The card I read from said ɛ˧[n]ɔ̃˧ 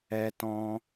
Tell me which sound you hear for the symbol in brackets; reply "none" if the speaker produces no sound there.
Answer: t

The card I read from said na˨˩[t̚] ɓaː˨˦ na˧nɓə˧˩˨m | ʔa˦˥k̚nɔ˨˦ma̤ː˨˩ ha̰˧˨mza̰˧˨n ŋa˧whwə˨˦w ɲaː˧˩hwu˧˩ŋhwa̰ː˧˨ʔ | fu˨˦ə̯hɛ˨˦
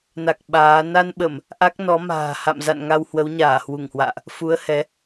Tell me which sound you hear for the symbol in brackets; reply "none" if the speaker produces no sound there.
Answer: k̚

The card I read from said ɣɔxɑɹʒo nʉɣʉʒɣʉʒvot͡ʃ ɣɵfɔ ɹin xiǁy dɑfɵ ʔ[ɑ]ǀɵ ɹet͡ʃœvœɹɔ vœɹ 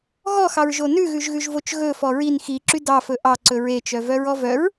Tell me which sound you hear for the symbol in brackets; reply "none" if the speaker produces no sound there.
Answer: ɑ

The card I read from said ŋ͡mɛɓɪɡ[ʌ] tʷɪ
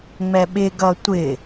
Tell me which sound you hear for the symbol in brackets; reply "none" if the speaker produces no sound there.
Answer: ʌ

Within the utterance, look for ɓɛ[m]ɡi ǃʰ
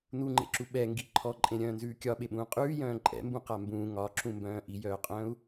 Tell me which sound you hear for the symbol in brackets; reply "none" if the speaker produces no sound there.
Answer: ŋ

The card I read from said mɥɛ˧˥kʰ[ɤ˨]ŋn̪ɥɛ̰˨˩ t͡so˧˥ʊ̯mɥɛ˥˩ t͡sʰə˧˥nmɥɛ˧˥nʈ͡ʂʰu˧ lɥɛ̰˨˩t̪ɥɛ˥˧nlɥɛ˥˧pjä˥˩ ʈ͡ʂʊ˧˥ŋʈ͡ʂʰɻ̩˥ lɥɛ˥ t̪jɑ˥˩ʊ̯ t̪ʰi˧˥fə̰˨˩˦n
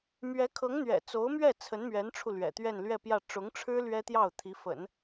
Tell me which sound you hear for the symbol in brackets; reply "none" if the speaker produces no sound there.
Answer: ɤ˧˥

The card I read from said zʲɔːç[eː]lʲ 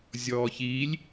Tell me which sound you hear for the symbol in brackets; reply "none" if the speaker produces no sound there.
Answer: iː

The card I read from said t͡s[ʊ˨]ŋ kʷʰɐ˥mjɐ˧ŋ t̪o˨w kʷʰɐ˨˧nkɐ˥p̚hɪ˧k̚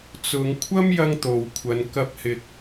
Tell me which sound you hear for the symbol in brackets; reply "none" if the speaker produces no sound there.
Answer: ʊ˨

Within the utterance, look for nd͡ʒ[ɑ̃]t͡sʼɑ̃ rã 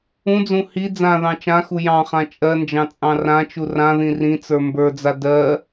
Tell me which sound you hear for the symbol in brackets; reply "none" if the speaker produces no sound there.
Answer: ɑ̃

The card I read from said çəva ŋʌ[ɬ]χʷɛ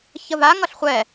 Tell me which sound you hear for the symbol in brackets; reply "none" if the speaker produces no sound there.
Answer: ɬ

